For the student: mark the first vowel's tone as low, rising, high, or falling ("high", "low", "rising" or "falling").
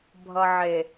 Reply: low